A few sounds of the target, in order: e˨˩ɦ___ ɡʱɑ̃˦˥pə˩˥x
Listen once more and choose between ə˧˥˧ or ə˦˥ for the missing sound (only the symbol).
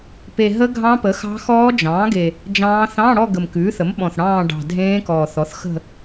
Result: ə˦˥